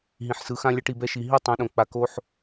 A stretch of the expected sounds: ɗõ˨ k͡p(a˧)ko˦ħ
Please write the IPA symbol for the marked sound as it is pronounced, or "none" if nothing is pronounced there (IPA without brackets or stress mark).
a˧